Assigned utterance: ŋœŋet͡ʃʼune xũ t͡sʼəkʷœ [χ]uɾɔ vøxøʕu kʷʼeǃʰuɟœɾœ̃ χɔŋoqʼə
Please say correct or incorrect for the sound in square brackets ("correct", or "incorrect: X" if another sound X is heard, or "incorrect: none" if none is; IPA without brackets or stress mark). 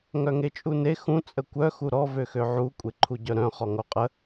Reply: incorrect: x